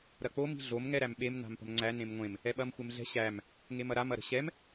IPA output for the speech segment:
ɾ ɐ k͡p o m i̤ ɮ o m ŋ ɛ ɾ æ m ɓ e m n a̤ m p ə̤ m ŋ͡ǀ æ n ẽ m ŋʷ ẽ m | ɛ ɓ ɐ m xʷ e m ɮ ɛ̤ ɕ æ m | ŋ e m ɐ ɾ a m ɐ ɾ ə̤ ɕ ɛ m

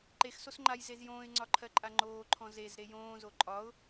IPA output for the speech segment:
ǃ e x s o s ŋ͡ǃ a j z e z j õː ɪ̯ ŋ͡ǀ ɒ ǃʰ ɜ ǃʼ a ŋ͡ǃ oː ǃʰ ɔ̃ z e z ɾ e j õː z o ǃʼ ɒ ʊ̯

